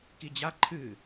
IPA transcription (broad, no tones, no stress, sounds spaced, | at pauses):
k i d͡ʑ a ǃʰ ɨ